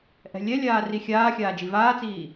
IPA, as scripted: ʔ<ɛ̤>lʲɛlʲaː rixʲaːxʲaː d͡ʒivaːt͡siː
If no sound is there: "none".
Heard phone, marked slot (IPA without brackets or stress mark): ɛ̤